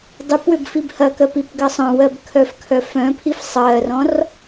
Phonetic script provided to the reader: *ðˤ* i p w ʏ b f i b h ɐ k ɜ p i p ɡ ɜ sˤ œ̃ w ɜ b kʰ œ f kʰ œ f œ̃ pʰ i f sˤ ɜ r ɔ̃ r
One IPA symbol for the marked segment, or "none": dˤ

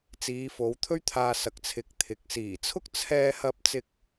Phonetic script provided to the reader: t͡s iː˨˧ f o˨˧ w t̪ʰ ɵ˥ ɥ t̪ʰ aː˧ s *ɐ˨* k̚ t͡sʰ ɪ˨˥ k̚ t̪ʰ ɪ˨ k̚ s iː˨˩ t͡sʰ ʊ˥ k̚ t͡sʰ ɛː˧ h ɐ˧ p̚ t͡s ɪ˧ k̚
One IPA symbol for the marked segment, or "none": ɐ˨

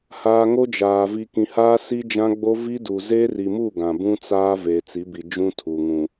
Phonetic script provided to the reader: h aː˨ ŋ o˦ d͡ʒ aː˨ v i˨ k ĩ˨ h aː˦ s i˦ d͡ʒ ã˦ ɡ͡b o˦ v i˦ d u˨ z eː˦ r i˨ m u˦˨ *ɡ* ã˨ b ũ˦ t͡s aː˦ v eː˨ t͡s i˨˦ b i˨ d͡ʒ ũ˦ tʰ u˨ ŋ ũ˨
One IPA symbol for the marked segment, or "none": ɡ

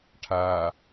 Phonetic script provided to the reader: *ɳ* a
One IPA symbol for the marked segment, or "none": ʈʰ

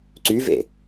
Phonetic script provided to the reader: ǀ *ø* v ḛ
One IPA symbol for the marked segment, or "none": y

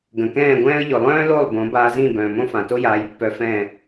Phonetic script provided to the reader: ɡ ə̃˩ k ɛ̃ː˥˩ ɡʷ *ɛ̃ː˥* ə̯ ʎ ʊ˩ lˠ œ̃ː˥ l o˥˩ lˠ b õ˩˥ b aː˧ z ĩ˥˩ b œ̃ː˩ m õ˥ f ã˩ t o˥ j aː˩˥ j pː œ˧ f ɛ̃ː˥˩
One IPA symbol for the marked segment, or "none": ɛ̃ː˥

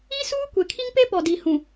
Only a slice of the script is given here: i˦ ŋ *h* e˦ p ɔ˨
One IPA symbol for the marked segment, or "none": p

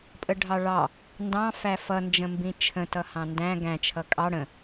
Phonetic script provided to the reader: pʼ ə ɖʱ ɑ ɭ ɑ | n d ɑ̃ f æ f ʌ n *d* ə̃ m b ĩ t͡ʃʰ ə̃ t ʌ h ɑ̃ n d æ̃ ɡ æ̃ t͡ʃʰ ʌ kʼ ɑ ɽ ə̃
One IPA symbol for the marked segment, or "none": d͡ʒ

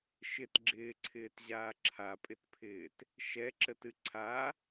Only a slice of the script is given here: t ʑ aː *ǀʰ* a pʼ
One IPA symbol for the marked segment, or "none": ǁʰ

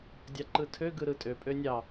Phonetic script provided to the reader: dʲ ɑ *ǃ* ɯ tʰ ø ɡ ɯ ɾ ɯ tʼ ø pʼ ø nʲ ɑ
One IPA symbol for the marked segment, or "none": ǃ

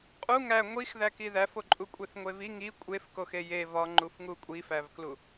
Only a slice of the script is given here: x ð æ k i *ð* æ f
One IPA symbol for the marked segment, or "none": ð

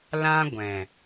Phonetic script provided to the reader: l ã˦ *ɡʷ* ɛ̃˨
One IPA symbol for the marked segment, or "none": ɡʷ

